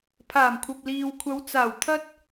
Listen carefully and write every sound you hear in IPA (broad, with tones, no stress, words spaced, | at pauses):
pʰaː˨˩mkʷʰɐ˨p̚liː˨wkʷʰɐ˨˧w t͡saː˨˩wt̪ʰɐ˧t̚